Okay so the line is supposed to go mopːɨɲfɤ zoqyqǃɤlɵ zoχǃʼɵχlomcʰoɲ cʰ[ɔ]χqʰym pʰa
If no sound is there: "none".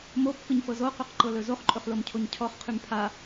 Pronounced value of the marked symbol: ɔ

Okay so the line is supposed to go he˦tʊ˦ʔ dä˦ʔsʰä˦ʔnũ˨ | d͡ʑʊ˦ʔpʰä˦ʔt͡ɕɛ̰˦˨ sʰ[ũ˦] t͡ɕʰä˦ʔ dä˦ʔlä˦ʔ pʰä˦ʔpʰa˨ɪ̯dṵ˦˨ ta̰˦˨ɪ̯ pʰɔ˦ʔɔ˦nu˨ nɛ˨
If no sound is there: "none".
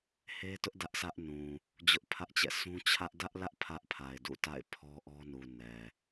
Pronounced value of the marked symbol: ũ˦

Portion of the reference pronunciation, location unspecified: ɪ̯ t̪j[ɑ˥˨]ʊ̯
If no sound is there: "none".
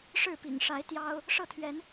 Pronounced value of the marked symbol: ɑ˦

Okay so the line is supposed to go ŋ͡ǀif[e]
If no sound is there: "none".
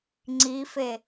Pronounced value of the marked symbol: e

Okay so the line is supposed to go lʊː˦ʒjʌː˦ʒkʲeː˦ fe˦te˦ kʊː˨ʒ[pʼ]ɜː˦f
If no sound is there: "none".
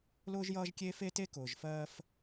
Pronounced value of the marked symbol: f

